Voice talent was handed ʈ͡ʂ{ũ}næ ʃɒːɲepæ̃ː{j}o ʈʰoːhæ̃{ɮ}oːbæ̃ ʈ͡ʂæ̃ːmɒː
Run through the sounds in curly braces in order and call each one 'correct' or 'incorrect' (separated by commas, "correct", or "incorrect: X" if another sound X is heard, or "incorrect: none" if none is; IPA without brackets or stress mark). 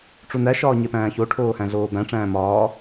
incorrect: u, incorrect: ç, correct